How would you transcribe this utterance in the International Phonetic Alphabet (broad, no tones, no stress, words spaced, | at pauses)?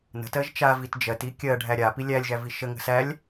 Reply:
nə̤tɜʒ t͡ʃa vitd͡ʒɜti kʲɜ ɖʱæɾʲapi lʲælʲʒæ viʃəŋə̤ sælʲ